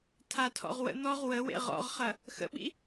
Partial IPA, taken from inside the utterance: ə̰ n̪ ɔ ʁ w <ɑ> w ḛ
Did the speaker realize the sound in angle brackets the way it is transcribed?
no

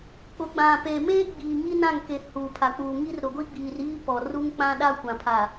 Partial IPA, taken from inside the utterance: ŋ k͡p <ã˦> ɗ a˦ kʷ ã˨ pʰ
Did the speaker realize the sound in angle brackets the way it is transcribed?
yes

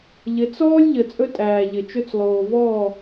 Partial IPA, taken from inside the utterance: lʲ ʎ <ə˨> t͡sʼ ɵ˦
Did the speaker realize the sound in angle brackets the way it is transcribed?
yes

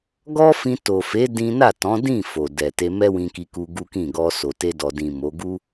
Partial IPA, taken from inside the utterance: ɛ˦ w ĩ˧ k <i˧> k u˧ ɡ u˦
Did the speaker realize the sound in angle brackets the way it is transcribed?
yes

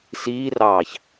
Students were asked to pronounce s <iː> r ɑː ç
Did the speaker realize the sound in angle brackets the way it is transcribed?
yes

